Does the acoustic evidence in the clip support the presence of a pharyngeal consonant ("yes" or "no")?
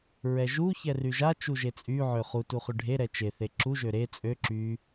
yes